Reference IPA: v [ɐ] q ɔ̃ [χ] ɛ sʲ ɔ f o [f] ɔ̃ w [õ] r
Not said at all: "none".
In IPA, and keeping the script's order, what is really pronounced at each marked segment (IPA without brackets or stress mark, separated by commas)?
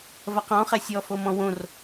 ɐ, χ, m, õ